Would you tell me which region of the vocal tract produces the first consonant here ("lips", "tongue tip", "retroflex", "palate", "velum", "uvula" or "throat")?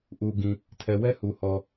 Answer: throat